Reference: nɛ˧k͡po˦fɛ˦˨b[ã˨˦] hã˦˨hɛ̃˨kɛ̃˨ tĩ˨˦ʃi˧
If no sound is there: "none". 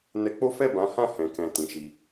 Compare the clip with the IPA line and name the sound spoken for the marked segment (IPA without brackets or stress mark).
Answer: ã˨˦